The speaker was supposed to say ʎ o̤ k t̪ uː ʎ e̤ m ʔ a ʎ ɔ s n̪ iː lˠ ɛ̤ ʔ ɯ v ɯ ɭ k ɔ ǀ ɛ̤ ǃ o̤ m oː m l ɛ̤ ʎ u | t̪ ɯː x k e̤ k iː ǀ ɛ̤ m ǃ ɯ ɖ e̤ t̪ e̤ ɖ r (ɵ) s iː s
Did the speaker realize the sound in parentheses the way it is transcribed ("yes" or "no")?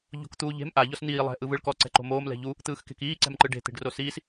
no